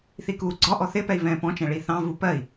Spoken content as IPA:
θ i k uː ɡ͡ǀ ɒ ʔ ɔ θ ɪ p ɛ i̯ v ɛ̃ː p ɔ̃ t͡ʃ ɛ̃ ɭ i θ ɑ̃ v u p ɜ i̯

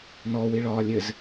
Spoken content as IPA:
n ɔ w i ɭ ɒː lʲ ɘ z

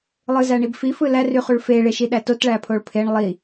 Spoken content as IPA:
lˠ ɯ z æ ɳ i b f i f ɯ l æ r y χ u ɭ f e ɭ e ʃ i ɗ æ t o t ɭ æ pʰ o ɭ pʰ e ɳ lˠ i

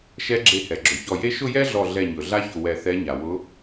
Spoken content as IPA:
ʃ ɛ˧˥ ɡ͡ǁ e˧˩ h ɛ˩ ɡ͡ǁ ʊ˩ ç ɔ˧˩ j e˥ ʃ ʊ˥˧ j ɛ˥ ɮ ɔ˧˩ ɮ ɛ˧˩ ɲ ɵ˩ ɮ a˥ ç ʊ˧˩ w ɛ˧˩ θ ɛ˧˥ ɲ a˩ w ʊ˧˥

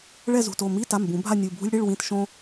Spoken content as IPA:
ɭ ɛ˥˧ z ṳ˩˧˩ t o˩˧˩ m i˧˥˧ t a˩˧˩ m b ũ˨˩˦ bʱ a˥˧ nʲ u˩˧˩ bʱ ṳ˥ lʲ ɽ i˧˥˧ ɭ w ĩ˧˥˧ t ʃ õ˥

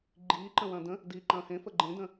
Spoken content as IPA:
ɡ͡ǃ iː ǃ ə̃ w ɐ̃ː d ə̃ | d iː ǃ ɐ̃ː h ẽ f ə ɡ͡ǃ ẽ d ə̃

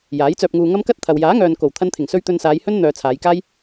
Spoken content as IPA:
j aː˨˥ j t͡s œː˧ p̚ ŋ uː˧ ŋ ɐ˥ m k ɐ˥ t̚ t̪ʰ ɐ˨ w j aː˨˥ ŋ œː˨ n k o˨˩ w t̪ʰ ɐ˧ n t̪ʰ ɪ˨˩ ŋ s ɵ˧ ɥ t̪ ɵ˧ n s aː˨˧ j h ɵ˥ n n̪ œː˧ t͡sʰ aː˨˧ j k aː˥ j

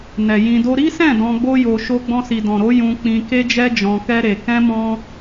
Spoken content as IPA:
n ɛ˨ j ĩ˧ d o˦ ɾ i˦ s ɛ̃˦˨ d ɔ̃˧ ɡ͡b o˦ j o˧ ʃ o˧ ɡ͡b ɔ̃˧ s i˨ d ɔ̃˨ ɾ o˨˦ j ũ˧ k͡p ĩ˧ k e˦ d͡ʒ ɛ˦ d͡ʒ ɔ̃˧ k ɛ˦ ɾ e˧ k ɛ̃˦ m ɔ̃˦

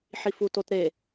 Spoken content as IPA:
ħ i f u t o t ɾ e

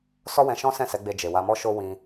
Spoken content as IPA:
s ɔ˦ w ɛ̃˧ ʃ ɔ̃˦ s ɛ̃˦˨ s ɛ˨˦ ɡ͡b e˧ d͡ʒ e˨ w a˧ m ɔ˦ ʃ o˦ w ĩ˧

